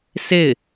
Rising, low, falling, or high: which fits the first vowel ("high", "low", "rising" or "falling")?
falling